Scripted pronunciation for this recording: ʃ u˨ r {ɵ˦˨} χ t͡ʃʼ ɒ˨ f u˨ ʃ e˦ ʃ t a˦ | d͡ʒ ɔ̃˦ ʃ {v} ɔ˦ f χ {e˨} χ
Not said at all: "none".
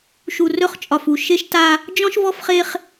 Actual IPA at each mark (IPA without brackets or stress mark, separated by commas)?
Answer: ɵ˦˨, v, e˦